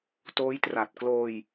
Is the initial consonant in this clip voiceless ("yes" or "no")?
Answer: yes